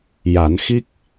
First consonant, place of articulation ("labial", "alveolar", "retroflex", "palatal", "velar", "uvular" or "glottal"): palatal